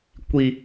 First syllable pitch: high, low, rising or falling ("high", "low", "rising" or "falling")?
high